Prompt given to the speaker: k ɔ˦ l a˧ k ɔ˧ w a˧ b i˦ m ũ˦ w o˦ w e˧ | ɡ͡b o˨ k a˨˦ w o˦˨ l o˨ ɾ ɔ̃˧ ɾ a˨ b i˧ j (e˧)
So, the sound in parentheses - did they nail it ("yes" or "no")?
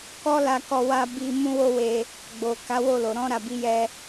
no